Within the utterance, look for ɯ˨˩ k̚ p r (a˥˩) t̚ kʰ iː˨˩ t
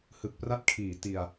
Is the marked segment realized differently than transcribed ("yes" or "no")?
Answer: no